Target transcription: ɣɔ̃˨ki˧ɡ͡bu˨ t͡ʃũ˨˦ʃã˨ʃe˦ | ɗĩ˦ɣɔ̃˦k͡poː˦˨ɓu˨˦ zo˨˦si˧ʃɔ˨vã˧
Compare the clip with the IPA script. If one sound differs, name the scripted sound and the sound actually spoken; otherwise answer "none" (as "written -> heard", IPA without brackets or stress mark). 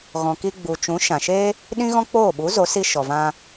none